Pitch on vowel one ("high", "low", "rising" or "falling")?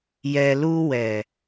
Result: low